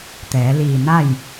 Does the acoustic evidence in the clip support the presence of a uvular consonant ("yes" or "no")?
no